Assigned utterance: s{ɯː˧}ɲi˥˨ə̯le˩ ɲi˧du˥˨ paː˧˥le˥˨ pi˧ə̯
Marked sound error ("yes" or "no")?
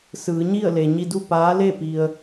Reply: yes